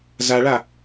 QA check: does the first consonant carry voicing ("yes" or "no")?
yes